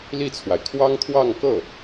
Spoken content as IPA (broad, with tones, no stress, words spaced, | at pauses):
li˥˩t͡sʰwa˩ɪ̯ kʰwɑ˥ŋt̪ʰwɑ˥˧ŋkɤ˥˩